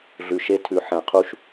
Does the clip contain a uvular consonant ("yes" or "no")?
yes